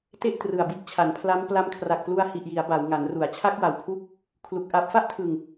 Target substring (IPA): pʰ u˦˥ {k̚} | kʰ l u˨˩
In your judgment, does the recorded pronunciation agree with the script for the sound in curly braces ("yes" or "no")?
yes